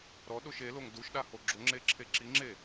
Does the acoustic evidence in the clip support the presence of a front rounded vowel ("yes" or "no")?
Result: no